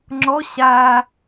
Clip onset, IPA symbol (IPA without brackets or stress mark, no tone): ŋ͡ǁ